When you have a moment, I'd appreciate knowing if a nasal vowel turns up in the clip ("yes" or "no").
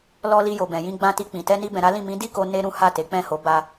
yes